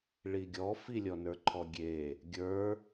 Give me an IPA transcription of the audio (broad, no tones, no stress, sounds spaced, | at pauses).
ɭ i ɡʲ ɔ f i lʲ ɔ n ə˞ ǃʰ ɔ ɡʲ e | ɡʲ ə˞